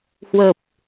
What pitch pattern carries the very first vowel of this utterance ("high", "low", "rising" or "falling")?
low